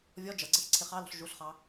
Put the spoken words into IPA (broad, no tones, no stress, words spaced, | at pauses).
vʲɔ d͡ʒʌɡ͡ǀɛçǀʰɪ χɑlɔ̤ɬ ʒuɬχɑ